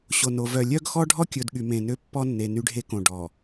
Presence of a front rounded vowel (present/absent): present